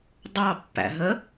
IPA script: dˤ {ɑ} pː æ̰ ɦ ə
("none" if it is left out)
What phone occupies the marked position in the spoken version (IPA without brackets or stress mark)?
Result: ɑ